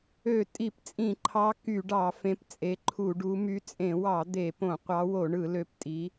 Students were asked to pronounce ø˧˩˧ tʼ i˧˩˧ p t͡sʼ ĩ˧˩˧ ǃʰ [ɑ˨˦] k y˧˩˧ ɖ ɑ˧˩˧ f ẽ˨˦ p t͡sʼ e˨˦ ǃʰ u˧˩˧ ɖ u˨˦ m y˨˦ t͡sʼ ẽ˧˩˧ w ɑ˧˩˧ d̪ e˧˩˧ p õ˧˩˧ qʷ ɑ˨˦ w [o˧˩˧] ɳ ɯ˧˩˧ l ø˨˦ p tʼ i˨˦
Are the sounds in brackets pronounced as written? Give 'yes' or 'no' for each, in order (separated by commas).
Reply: yes, yes